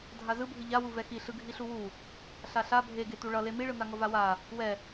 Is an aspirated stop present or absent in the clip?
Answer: absent